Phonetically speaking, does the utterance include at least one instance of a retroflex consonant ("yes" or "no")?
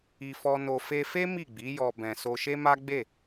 no